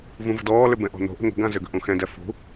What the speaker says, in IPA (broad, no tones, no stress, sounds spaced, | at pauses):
v ũ v ə̤ d ɔː l ʏ b ɛ̃ ʔ ɔ̤ n o̤ ʔ ə̤ ŋ ə̤ ɡ ã z ʏ ɡ ə̤ ʔ ũ x ɛ̃ d ɛ f ṳ